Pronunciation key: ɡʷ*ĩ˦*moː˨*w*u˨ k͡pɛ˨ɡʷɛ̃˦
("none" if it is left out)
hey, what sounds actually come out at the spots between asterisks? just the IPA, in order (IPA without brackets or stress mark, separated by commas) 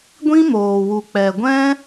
ĩ˦, w